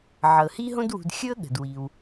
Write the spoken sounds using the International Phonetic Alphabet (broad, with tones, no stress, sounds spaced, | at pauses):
ʕ ɤ˩ h i˦ ɦ õ˦ d w ṳ˨ d xʲ ɤ˥ ɠ ə̤˩ d w i˩ w